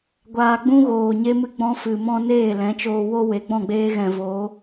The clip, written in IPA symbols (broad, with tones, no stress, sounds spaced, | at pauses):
ɡʷ aː˧ ɡ͡b ũ˦ ɣ oː˨ ɲ e˦ m ɨ˦ ɡ͡b ɔ̃˦ f ɨ˨ m ɔ̃˦ n eː˦˨ l ɛ̃˨˦ t͡ʃ oː˧ w o˦ w e˨˦ ɡ͡b ɔ̃˦˨ ɡ͡b eː˦ ɣ ɛ̃˨ v oː˨˦